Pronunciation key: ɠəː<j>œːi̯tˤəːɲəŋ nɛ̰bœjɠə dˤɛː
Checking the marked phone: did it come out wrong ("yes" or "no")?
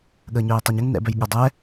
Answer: yes